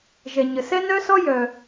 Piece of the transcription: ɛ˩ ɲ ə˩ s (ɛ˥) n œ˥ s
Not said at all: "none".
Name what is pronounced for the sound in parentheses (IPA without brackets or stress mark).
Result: ɛ˥